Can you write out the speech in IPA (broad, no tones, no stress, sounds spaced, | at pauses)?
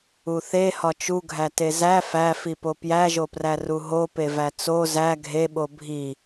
u θ e h ɒ t͡ʃ u ɡʱ æ t e z æ f æ f i p o p j æ ʒ o p r æ r u ɦ o p e v æ t͡s o z æ ɡʱ e ɓ o bʱ i